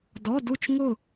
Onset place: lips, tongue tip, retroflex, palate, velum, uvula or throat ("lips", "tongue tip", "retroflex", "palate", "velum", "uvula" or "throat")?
tongue tip